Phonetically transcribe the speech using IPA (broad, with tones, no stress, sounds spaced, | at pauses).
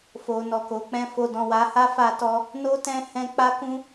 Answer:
f o˨ n ɔ˨ k o˨˦ k͡p ɛ̃˧ f o˧ d ɔ̃˨ w a˨˦ h a˦ f a˦ t ɔ˦ | n o˦ t ɛ̃˧ h ɛ̃˧ k͡p a˦ k ũ˦